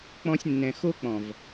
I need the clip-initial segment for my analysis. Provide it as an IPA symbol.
k͡p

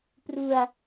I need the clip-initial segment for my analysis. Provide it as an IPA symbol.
p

